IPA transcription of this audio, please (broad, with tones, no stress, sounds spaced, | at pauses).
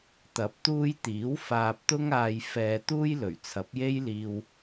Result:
t̪ ɐ˨˥ p̚ t̪ uː˧ j t̪ iː˨˥ w f aː˨ p̚ t̪ ʊ˧ ŋ aː˨ j f ɛː˨ t̪ uː˧ j l ɵ˨˩ ɥ t͡sʰ ɐ˨˥ p̚ j e˥ j l iː˧ w